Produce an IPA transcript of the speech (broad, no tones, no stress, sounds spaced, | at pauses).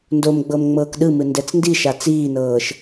n d o m ɡ͡b ɤ m ŋ͡m ɤː k ɗ ɯ m ɯ n d ɛ t͡s n d i ʃ a t͡s iː n ɤː ʃ